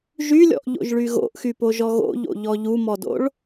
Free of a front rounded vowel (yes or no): no